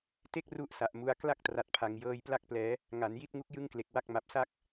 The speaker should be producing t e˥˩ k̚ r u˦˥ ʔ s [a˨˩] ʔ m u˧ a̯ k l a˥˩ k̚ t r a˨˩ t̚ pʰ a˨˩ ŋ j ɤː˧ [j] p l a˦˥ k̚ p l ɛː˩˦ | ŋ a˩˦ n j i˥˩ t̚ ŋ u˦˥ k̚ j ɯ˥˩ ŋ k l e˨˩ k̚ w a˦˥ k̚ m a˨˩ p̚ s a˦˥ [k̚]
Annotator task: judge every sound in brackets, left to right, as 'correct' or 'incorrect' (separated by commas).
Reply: correct, correct, correct